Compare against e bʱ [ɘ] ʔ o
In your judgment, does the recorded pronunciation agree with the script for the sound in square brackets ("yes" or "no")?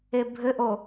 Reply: yes